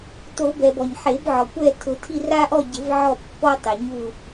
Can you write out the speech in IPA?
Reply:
to˨˩˦bɛ˩b ɔ˩ɲħe˨˩˦bʕɔ˩kʷɛ˦˨ tʰʊ˨˩˦tʰi˦˨ ra˦ʔɔ˦˨ɟɪ˨˩˦v ʕɔ˦˨pːɔ˦ tˤɪ˩ ɲu˦˨

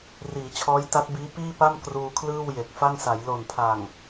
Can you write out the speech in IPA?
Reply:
riː˩˦t͡ɕʰɔː˦˥j ta˦˥t̚biː˦˥ piː˥˩pa˥˩m kruː˧kʰlɯː˥˩wje˨˩k̚fa˥˩ŋ sa˩˦j lo˨˩npʰa˨˩ŋ

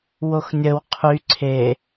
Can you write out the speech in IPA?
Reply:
woxnʲəw qʰy ǀʰe

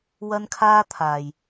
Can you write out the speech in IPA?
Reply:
wɐ˥nkʰaː˥t̪ʰaː˨j

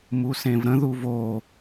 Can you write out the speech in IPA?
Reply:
musẽvɾə̃ ðuvo

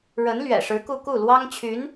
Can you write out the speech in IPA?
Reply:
ɻə˧˥n lɥɛ̰˨˩ʂɻ̩˧˥ku˥˧ ku˥˩lwɑ˥ŋt͡ɕʰy˧˥n

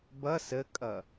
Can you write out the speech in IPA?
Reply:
bʌ səkʼʌ

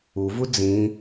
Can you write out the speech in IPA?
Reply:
uvu d͡zĩ

